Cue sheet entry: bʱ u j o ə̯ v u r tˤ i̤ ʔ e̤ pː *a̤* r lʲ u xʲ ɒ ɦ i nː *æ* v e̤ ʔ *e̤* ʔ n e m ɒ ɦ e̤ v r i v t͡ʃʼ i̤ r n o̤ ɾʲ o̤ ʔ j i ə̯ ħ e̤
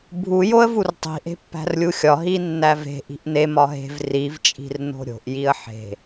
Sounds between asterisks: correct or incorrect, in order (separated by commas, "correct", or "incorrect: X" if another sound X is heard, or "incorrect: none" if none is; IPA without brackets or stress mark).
incorrect: æ̤, correct, incorrect: i̤